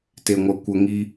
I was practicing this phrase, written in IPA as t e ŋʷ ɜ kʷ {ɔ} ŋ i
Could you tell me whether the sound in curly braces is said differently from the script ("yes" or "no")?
yes